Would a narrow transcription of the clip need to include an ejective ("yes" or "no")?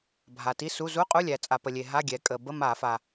yes